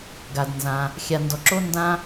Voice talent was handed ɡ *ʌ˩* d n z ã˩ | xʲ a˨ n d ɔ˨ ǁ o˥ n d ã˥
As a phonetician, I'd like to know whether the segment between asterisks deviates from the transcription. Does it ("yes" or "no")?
yes